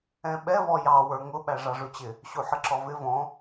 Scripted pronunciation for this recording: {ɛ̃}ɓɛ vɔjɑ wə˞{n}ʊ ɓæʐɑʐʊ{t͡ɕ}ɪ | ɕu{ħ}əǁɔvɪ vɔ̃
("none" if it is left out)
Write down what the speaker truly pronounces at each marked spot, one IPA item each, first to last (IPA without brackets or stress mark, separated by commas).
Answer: ɛ̃, ŋ, t͡ɕ, ħ